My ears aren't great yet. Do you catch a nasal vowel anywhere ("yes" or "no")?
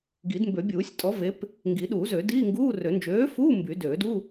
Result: no